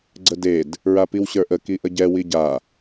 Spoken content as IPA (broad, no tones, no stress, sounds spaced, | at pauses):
ɡ͡ǀ ə d e d | ɹ a p i w ɕ ə˞ ʔ ə k i ʔ ə ɟ ɛ w i ɟ a